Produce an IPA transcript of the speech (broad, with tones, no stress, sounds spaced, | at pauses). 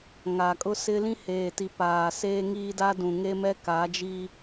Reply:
ŋ a˨ kʼ ʊ˦ s ɪ˦ l ĩ˦ h eː˨ t i˨ p aː˨ s eː˦ ŋ iː˦ d a˦ d ũ˨ ŋ e˦ m ɛ˦ k a˨˦ d͡ʒ iː˦